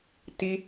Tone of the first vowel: high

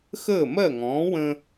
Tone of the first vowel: falling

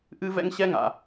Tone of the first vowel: high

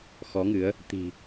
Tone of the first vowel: rising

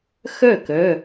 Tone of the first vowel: falling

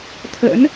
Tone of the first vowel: rising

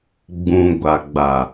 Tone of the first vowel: low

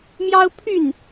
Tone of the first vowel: high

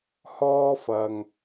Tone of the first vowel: high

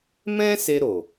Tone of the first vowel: high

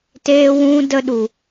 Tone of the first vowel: high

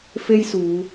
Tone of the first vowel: high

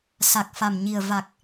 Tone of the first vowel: low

